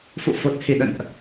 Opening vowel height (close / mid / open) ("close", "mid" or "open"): close